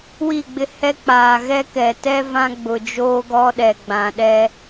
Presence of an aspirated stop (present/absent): absent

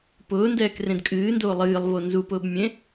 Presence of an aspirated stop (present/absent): absent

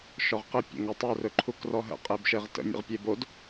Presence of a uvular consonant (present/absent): present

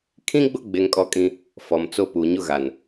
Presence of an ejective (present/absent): present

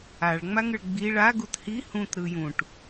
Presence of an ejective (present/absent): absent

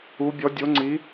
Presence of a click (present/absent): present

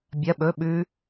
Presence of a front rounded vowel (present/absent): absent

